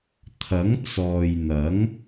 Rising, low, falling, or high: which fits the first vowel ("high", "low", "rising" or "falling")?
rising